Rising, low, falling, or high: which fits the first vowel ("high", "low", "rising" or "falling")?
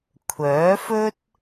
rising